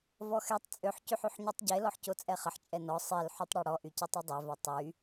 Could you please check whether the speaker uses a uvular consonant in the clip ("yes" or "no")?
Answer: yes